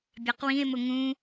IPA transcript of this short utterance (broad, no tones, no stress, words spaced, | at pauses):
bʲɑqwĩe̯mʊ ŋũ